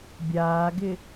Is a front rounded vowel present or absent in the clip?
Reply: absent